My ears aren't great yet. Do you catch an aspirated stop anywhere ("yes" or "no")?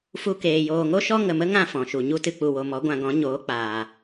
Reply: no